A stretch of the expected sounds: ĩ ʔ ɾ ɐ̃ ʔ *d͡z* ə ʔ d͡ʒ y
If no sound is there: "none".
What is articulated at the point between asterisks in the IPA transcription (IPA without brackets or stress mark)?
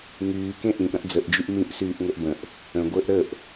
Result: d͡z